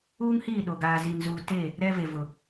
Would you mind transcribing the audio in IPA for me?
uː˦ ŋ h iː˦˨ ɗ o˨ ɡ aː˨ z i˨ n z uː˨ t e˦˨ | ɾ ɛ˦ v e˨ v ʊ˨

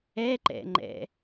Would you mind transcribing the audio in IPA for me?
ɛ ǃ ɛ̰ ŋ͡ǃ ɛ̰

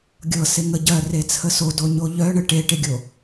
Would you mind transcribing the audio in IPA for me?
ɡʲ ɤ s e ŋ ə ɟ ɜ r e t͡sʰ ə s o d o ɲ o ʎ œ ɳ ə ʈ e ʈ e ɡʲ o

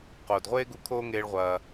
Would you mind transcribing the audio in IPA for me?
q oː˩ d ʁʷ eː˥ ɡ u˧ kʰ oː˥ ŋ eː˧ ɭ ʁʷ ɐː˩

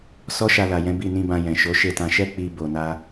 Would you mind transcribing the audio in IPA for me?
s ɔ˦ ʃ a˧ l a˨ j ɛ̃˨˦ b i˦˨ n ĩ˧ b ã˧ j ɛ̃˨ ʃ o˨˦ ʃ e˦˨ t ã˧ ʃ ɛ˦ k͡p i˧ b o˧ n a˦

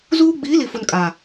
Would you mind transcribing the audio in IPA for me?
z uː˦ ɡ͡b iː˨˦ l i˨ f ʊ˨ n kʼ a˨

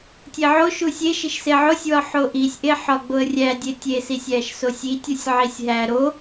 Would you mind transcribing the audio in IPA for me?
tʲ e ʕ o ʃ u sʲ e ʃ i ʃ s e ʕ o sʲ w ɒ ħ o ʔ i sʲ ʔ e ħ ɒ ɡ͡b o ə̯ rʲ æ dʲ e tʲ e s i sʲ æ ʃ s o sʲ i tʲ u sʲ ʕ i sʲ ɦ æ ɾ o

